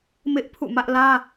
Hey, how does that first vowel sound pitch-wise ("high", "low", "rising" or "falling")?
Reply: high